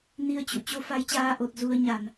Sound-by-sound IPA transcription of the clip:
n i˧ ə̯ t͡ɕ ṵ˧˨ t͡ɕ o˧ f a˧ j t͡ɕ aː˧ ʔ o˨˩ t̚ z u˧ ə̯ ɲ a˧˩˨ n

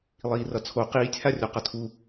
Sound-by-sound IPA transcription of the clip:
lˠ iː r ʌ t͡sʰ o q iː tʲ h a rʲ o q ʌ tʰ u

